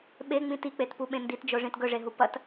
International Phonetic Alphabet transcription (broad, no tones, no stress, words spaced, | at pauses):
ɓeŋ͡mĩ tik͡petpuɓẽ nditd͡ʒoʐĩt ɡɵʐeɦu pɐt